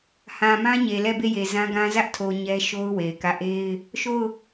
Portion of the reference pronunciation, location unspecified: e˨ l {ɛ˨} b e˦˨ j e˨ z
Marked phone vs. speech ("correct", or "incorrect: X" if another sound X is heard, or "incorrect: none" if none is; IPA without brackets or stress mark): incorrect: ɛ˦˨